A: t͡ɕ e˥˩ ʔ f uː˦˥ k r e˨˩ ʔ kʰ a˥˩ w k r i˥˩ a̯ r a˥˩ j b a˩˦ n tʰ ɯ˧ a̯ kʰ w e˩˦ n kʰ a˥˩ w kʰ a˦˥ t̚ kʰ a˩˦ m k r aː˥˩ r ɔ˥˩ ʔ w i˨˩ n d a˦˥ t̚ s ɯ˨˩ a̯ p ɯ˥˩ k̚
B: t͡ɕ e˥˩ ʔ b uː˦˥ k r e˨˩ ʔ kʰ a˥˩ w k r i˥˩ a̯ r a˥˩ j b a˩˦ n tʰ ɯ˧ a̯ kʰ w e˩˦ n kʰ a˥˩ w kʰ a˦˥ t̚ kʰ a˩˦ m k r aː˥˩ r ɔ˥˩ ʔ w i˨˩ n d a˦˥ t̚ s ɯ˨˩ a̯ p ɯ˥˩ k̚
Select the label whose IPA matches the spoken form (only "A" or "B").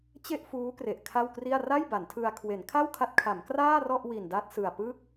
A